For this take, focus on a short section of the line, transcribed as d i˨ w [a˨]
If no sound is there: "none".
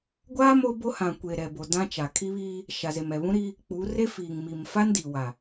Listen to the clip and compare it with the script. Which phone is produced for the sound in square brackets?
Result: a˨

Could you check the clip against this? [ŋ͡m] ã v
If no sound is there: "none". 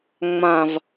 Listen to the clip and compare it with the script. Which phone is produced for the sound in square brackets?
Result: ŋ͡m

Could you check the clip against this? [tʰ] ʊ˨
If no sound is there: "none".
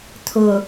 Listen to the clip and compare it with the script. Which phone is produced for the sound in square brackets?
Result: tʰ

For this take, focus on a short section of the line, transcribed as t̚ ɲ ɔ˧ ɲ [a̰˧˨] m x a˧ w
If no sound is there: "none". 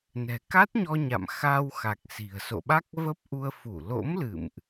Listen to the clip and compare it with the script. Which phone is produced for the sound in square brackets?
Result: a̰˧˨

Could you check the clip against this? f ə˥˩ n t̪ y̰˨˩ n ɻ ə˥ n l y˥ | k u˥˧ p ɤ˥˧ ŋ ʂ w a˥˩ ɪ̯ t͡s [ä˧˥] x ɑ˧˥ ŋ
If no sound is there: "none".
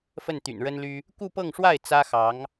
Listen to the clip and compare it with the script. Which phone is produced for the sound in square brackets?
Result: ä˥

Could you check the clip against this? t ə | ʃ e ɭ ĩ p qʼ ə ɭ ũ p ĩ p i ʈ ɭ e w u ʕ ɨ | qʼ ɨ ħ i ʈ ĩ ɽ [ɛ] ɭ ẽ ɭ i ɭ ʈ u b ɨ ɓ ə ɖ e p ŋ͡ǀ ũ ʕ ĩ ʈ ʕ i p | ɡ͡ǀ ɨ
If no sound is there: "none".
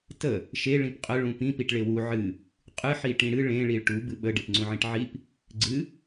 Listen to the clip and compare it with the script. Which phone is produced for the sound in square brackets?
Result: ɨ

